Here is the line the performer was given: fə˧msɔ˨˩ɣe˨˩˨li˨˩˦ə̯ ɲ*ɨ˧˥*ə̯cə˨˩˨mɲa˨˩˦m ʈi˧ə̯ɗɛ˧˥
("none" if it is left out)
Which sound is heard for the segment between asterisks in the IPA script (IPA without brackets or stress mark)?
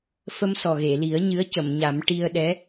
ɨ˧˥